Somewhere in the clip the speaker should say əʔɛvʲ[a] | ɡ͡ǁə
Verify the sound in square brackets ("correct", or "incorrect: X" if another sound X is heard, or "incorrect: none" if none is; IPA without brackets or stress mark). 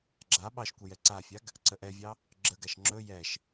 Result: incorrect: ɑ